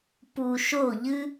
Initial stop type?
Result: plain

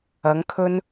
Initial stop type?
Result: aspirated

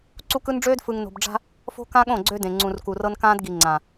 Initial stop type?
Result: click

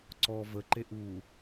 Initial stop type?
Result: click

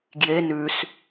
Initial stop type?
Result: plain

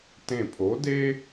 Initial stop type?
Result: plain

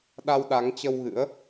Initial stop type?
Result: implosive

